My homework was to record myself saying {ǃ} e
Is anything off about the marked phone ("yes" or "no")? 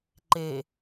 no